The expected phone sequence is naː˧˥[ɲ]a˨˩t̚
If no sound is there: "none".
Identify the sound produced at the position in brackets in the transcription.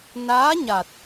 ɲ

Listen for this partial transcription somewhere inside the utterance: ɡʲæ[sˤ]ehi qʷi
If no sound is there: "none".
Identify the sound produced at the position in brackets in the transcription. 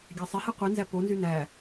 sˤ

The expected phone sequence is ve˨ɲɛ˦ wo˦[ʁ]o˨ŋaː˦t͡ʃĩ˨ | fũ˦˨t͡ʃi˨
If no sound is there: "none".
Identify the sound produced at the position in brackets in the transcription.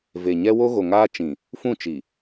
ɣ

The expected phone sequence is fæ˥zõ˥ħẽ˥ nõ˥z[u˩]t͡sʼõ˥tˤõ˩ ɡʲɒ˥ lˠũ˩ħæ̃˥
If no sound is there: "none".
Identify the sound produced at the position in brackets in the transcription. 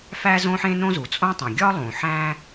u˩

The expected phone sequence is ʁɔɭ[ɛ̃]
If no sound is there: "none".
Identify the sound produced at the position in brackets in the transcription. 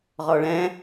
ɛ̃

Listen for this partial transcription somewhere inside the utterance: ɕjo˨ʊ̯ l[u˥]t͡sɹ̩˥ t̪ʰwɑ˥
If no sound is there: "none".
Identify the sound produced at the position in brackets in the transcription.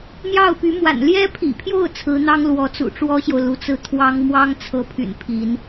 u˧˥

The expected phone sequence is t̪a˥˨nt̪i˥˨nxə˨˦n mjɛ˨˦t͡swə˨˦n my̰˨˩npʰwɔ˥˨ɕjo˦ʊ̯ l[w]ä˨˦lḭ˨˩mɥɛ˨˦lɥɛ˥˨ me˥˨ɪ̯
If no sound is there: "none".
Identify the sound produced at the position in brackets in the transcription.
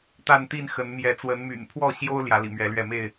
j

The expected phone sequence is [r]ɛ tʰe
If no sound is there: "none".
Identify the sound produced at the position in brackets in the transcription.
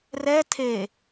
r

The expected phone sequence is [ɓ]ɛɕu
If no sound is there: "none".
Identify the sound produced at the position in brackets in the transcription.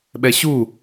ɓ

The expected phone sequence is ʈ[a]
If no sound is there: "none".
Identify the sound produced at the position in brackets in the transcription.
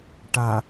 a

